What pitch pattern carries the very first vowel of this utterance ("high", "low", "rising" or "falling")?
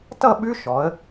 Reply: falling